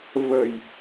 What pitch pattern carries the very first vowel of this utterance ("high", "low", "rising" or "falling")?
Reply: low